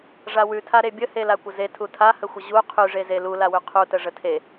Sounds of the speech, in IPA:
ʐawʉtʰa ɾebʲə helakʷəze tʰutʰahəxʷə ʑu qʰʉʐeze lulawʉ qʰutə ʐətʰe

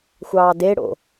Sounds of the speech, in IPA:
xʷɑːde ɽo̰

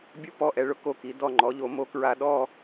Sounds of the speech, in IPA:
bʲo˥ pɔ˧˩ʔɛ˩˧ ɭʊ˧ ko˧˩ki˩˧ dɔ˧˩ŋ͡ǃɔ˩˧ʎo˩˧ mo˥kɹa˥ ɗɔ˥˧

